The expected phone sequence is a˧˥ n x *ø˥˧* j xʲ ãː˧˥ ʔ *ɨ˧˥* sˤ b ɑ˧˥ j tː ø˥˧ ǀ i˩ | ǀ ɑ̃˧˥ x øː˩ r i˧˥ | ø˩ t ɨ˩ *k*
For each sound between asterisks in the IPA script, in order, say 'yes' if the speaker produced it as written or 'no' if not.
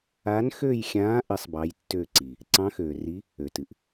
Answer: yes, yes, no

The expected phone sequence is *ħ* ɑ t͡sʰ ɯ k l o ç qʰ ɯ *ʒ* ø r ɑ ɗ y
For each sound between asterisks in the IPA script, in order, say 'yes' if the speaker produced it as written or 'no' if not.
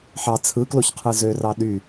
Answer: yes, no

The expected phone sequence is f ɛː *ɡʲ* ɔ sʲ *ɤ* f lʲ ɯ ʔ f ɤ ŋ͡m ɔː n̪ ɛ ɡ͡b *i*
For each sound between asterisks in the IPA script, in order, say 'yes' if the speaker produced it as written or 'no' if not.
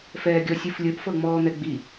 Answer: yes, no, yes

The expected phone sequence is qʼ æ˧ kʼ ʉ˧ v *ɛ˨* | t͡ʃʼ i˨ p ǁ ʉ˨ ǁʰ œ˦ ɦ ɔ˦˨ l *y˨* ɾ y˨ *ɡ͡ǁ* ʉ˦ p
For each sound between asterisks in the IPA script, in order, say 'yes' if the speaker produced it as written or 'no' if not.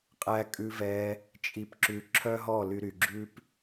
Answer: no, no, yes

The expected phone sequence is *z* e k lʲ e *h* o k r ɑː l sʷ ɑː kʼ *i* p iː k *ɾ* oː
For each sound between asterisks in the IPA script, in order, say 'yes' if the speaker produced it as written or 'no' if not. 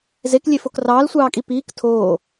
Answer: yes, no, yes, no

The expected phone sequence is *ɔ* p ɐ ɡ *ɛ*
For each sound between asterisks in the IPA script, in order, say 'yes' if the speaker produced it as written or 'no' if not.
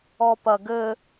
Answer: yes, no

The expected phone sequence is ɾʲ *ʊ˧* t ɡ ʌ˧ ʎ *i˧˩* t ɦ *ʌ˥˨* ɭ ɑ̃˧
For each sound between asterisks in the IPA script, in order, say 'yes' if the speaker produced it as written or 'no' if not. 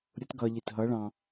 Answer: no, yes, no

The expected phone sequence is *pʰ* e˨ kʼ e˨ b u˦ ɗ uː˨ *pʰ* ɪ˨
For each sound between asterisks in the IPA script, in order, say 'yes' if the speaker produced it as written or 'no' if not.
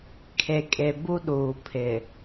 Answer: no, yes

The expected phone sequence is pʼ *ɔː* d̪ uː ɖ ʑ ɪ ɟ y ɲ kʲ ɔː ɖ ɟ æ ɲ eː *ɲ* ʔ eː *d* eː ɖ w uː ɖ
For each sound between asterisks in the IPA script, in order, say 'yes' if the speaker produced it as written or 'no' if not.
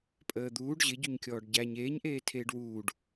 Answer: no, yes, no

